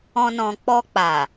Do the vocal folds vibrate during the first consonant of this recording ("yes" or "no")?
yes